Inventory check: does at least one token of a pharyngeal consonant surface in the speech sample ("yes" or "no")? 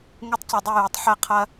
yes